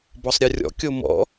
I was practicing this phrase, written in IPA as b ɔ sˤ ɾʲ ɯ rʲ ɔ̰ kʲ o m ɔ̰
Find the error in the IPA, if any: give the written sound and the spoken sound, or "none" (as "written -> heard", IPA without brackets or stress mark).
none